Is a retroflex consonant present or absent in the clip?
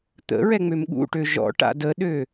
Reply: present